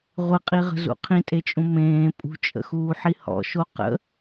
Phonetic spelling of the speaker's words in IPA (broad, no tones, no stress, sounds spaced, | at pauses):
ʁʷ ɨ qʼ i ʁ ə̤ z ṵ qʰ ĩ tʼ e t͡ʃʼ ũ m ẽː pʼ ṳ t͡ʃʼ ə̰ x uː ħ i h ɔ̰ ʃ o q ə̰